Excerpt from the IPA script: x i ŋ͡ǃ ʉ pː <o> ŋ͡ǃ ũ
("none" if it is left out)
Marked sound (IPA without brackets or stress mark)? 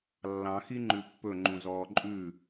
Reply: ɵ